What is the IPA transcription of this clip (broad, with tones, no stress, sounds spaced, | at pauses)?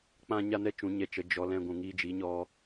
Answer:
k͡p ã˦ ɲ a˦ n ɛ˦ t͡ʃ ũ˨˦ ɲ ɛ˧ t͡ʃ ə˨˦ d͡ʒ ɔ˧ l ɛ̃˦ ɡʷ ũ˧ ŋ iː˦ d͡ʒ i˨˦ ɲ ɔ˧